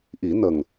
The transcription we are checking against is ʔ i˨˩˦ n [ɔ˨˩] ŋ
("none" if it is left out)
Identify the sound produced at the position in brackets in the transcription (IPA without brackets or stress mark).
ə˨˩